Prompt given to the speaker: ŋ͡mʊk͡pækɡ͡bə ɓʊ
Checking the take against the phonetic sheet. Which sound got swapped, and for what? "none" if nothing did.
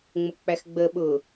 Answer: k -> x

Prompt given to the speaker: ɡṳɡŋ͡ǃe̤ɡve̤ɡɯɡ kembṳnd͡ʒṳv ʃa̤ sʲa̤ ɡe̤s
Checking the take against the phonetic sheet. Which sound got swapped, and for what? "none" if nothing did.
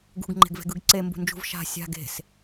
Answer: k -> ǀ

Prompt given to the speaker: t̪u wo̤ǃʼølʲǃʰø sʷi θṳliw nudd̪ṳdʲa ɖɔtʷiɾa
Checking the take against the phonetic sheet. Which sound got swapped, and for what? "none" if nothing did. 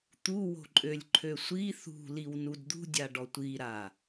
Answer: none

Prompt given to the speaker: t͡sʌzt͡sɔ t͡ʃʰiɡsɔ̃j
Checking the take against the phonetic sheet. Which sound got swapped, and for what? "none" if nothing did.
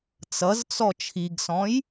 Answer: none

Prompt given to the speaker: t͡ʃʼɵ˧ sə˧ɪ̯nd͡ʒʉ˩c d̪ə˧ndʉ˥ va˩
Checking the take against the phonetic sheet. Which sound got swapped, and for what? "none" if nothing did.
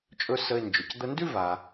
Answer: none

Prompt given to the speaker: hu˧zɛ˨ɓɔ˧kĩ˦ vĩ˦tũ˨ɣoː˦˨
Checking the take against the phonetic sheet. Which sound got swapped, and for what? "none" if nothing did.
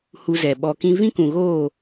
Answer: t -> k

